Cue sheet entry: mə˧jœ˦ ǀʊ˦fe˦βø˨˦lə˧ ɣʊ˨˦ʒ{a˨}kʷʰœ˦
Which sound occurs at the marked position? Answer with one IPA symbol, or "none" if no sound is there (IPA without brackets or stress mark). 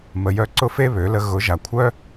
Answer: a˨